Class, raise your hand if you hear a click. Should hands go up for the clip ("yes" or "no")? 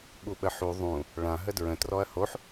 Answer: no